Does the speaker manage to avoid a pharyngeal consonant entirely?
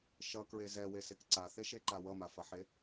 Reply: no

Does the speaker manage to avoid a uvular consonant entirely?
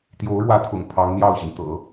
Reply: yes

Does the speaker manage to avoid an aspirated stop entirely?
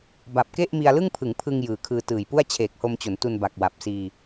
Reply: no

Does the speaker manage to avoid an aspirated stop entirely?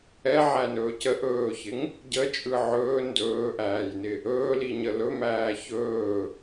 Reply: yes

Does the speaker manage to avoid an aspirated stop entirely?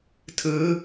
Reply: no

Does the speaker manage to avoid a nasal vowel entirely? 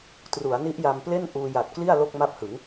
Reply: yes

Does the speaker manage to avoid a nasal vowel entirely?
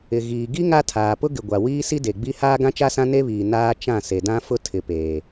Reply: no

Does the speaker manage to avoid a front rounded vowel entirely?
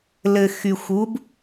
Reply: no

